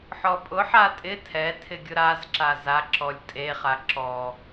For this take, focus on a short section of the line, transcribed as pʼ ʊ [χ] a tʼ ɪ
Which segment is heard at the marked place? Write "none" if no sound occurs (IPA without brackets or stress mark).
ħ